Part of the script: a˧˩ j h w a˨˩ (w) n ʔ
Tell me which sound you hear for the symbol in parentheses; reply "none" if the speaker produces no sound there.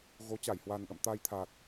none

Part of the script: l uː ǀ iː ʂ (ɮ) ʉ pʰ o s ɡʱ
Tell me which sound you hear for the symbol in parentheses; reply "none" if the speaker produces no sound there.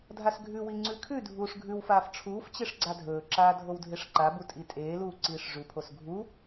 ʐ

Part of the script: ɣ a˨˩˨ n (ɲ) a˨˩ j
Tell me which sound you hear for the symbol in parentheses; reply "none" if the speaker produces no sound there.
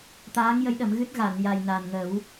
j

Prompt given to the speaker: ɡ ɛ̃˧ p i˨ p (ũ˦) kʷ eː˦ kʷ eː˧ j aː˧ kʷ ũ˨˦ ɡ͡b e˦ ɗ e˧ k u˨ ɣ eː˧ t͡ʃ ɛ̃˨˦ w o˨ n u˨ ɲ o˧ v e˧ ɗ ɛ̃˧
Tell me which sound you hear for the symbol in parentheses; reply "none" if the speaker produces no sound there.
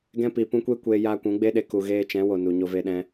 ũ˧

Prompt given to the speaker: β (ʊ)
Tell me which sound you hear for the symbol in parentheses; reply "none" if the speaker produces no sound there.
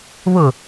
ʊ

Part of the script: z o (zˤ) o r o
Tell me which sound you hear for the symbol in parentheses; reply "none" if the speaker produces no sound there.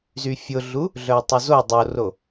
dˤ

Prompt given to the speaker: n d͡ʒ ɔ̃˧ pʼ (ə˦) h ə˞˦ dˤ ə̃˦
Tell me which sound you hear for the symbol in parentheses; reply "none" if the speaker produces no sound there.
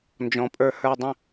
ə˞˦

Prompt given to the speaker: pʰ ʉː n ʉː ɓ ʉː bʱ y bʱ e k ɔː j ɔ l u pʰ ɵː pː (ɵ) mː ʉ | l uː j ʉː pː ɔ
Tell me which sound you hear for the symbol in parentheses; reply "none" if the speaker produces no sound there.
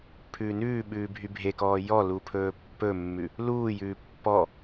ɵ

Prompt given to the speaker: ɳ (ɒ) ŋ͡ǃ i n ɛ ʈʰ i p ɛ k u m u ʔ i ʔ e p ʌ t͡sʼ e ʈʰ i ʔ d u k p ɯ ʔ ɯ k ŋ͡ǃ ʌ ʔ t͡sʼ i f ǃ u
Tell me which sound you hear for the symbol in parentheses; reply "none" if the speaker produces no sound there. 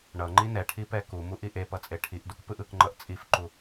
ʌ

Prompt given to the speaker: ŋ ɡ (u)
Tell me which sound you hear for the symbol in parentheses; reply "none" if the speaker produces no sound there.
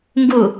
u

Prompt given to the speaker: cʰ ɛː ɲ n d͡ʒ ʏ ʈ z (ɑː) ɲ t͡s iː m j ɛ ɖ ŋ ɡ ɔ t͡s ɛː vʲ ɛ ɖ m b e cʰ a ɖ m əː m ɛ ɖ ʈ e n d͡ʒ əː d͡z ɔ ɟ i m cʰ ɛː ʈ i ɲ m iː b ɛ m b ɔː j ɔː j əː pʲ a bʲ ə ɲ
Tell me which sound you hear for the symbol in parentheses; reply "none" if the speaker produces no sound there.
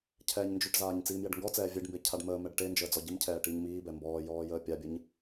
aː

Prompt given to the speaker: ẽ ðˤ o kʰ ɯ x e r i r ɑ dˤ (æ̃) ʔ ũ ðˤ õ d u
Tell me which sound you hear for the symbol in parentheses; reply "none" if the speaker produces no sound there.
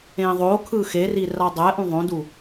æ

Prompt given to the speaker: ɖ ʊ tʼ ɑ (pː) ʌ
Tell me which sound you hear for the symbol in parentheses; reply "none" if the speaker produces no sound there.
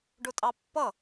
pː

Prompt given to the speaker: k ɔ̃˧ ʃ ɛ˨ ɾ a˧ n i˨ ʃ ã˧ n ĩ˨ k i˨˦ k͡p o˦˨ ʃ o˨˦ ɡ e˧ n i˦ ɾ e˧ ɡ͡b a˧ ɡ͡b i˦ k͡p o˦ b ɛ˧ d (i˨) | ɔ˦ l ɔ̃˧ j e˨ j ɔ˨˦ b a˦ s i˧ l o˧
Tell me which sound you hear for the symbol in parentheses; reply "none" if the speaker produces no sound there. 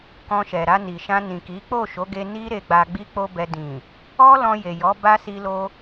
ĩ˨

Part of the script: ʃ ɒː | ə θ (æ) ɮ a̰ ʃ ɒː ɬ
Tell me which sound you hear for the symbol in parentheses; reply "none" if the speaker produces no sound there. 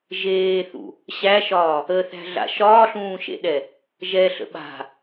æ̤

